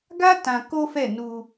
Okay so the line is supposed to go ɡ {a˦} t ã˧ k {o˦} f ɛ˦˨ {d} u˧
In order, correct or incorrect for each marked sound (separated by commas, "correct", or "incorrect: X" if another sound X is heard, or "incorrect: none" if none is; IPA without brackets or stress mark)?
correct, correct, incorrect: n